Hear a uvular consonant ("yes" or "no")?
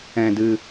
no